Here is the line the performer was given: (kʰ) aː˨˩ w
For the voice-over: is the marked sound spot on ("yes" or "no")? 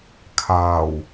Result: yes